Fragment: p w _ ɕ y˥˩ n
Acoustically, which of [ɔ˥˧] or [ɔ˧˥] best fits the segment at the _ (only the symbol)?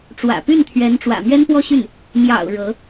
ɔ˥˧